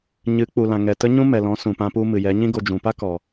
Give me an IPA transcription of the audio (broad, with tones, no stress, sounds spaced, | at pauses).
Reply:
ɲ ɨ˨˦ k͡p u˨ l ã˨ ŋ ɛ˨ t ə˦ ɲ ũ˦ m ɛ˨ l ɔ̃˨˦ s ũ˨ p ã˧ p u˧ m ɨ˨ j ɛ˨˦ ɲ ĩ˦ ɡ o˧ d͡ʒ ũ˨ p a˦ k ɔ˨